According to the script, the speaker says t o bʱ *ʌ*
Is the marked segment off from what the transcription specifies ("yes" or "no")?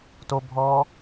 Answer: yes